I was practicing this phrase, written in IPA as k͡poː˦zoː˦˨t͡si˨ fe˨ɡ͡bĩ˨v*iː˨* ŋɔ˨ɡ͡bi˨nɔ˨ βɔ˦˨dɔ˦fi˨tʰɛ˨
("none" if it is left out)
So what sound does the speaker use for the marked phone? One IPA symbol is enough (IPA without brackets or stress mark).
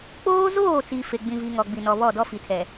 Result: i˨